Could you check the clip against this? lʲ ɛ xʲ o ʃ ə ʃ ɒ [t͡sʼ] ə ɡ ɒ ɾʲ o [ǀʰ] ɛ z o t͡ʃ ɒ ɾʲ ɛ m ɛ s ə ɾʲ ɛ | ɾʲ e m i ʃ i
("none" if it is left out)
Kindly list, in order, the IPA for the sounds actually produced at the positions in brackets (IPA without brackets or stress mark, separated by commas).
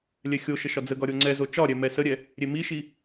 d͡z, ŋ͡ǀ